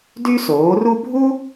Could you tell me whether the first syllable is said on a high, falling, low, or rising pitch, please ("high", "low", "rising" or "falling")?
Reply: high